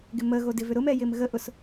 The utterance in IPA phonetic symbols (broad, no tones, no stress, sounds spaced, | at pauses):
ɡ ɪ m ə ɣ o d ɪ v ʏ ɾ ʊ m ɛ j ɪ m ɣ ə ʔ ʊ s